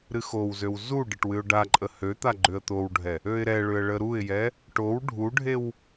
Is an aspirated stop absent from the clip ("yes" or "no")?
yes